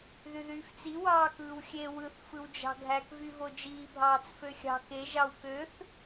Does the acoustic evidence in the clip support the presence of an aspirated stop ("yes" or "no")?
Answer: no